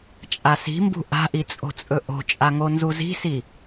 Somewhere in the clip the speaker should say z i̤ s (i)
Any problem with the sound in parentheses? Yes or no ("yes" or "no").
no